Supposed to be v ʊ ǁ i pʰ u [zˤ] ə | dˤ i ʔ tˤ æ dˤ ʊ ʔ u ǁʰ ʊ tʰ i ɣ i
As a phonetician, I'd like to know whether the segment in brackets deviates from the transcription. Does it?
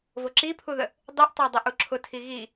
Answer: yes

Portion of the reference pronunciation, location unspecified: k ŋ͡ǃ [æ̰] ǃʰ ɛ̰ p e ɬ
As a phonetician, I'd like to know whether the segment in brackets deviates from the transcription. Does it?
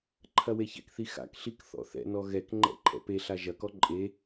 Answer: yes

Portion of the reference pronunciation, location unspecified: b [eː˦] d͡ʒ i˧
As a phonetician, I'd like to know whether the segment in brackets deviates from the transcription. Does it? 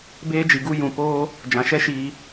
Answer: no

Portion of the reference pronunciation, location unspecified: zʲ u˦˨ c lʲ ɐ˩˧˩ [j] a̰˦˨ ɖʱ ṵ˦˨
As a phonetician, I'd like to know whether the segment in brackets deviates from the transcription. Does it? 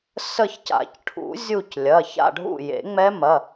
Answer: yes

